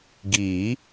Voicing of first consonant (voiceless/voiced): voiced